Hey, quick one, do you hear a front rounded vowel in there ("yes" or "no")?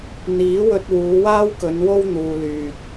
yes